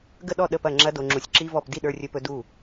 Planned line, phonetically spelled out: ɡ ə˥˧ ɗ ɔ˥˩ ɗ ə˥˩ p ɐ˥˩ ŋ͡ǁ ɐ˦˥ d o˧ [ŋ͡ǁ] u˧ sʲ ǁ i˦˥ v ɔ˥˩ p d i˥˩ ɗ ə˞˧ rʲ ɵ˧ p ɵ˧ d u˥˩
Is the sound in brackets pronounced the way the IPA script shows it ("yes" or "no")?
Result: yes